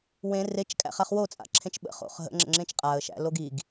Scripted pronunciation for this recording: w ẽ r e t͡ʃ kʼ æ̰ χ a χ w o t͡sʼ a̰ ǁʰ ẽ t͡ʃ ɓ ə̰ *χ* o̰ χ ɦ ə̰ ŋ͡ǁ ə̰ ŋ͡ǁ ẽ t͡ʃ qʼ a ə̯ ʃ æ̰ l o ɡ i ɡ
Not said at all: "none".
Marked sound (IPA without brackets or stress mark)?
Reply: χ